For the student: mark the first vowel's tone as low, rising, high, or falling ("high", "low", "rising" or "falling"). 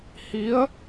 rising